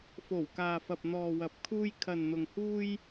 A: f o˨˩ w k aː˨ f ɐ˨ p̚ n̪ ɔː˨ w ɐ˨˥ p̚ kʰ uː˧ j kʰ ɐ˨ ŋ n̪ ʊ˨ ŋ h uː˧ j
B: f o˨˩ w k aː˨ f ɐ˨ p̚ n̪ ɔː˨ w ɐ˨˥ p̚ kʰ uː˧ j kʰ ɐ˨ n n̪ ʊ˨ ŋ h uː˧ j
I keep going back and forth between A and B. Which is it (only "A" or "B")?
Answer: B